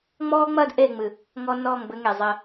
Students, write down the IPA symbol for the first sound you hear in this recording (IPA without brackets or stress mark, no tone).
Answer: ŋ͡m